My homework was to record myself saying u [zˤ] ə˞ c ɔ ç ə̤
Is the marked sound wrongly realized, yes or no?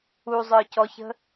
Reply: no